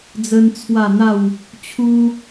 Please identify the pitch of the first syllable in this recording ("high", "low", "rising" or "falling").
high